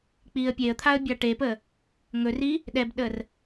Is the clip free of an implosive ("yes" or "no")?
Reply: no